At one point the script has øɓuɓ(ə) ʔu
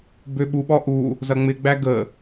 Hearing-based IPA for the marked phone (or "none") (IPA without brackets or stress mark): ɔ